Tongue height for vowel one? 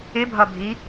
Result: high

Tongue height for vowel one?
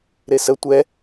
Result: mid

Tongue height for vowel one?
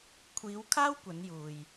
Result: high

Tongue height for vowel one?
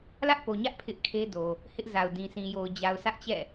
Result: low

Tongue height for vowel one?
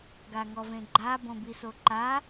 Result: low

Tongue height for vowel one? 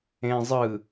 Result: mid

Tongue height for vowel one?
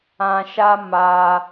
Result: low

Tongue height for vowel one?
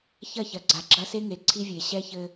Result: low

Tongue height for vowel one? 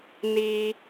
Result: high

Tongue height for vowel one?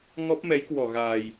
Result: mid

